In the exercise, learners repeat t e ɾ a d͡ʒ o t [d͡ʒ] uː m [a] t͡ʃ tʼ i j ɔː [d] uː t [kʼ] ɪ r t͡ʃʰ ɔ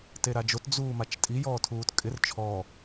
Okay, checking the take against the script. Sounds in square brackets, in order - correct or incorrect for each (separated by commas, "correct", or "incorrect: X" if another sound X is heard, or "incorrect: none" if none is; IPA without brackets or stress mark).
incorrect: d͡z, correct, incorrect: tʰ, correct